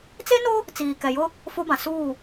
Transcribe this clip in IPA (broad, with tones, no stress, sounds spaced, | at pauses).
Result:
t͡s e˦ n o˦ | t͡s iː˨ k ɛ˨ j ʊ˦ | f o˦ b ã˨ s uː˦˨